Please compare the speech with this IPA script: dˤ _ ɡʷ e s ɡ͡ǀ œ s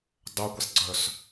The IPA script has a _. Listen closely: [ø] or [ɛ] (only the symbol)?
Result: ø